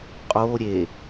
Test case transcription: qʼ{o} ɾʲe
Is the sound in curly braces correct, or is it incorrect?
correct